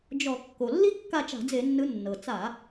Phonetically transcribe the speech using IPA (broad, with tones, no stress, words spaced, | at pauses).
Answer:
d͡ʒɔ˧˩˧ kːo˩lːi˥ kːa˦˨t͡ʃa̤˧˩˧d͡ze˧˩˧nːɯ˨˦ nːɤ˩t͡sa˧˩˧